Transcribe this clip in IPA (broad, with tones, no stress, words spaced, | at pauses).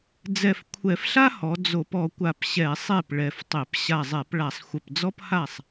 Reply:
d͡zɛ˧˩fkʷʰɛ˧˩˧fɬa˥hɔ˩˧ d͡zo˧˩˧pɔ˩˧ kʷa˧˩pɕɛ˧˩˧ sˤe˥˩p ɭɛ˧˩ftˤe˧˩˧p ɕa˧˩zˤɛ˧˩˧pɭa˧˩˧sˤ xʷə˧˩pd͡zɔ˥pha˥˩sˤ